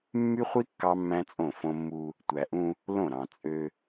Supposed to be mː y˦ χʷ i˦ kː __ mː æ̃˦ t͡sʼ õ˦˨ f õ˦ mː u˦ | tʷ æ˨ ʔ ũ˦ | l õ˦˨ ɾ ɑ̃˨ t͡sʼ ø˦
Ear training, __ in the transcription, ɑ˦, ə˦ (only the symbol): ɑ˦